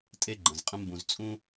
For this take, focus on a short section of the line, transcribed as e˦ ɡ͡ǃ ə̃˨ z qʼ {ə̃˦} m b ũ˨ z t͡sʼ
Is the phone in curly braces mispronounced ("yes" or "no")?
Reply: no